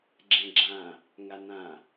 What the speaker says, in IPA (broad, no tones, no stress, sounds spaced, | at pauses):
ɡ͡ǁ ɛ̃ ɡ͡ǁ ã | ŋ a n ã